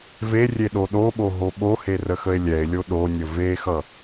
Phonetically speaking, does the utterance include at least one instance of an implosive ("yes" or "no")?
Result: yes